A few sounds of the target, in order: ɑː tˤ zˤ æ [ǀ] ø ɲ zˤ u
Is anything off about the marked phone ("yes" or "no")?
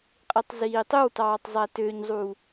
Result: yes